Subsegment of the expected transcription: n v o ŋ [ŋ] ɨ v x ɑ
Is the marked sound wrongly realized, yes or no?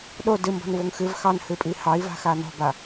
yes